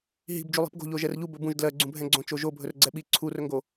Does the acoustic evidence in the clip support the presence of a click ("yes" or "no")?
yes